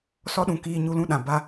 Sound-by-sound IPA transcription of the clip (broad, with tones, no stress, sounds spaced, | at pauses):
s ɔ˦ ɗ ũ˨ k iː˧ ɲ u˧ l ũ˦˨ ɗ ã˨ b a˧